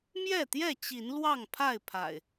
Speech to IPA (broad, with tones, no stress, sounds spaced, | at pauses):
m j ɛ˥˨ t̪ j ɛ˥˨ t͡ɕ i˨˦ n l w ɑ˥˨ ŋ pʰ a˥˨ ɪ̯ pʰ a̰˨˩ ɪ̯